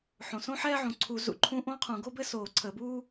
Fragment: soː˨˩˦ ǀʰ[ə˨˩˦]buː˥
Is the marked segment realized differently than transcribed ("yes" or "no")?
no